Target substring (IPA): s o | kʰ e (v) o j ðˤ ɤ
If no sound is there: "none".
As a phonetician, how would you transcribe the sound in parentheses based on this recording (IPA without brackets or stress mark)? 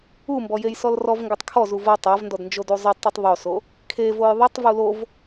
v